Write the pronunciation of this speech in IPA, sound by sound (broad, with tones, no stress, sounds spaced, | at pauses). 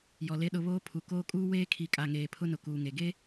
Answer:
j ɔ˨ l e˦ ɗ ʊ˨ β oː˦ pʰ u˨ k oː˦ kʼ uː˦ w eː˦ kʰ i˨ kʼ a˨ ŋ eː˨ pʰ ʊ˦ n ʊ˨ k uː˨ ŋ e˨ ɡ e˦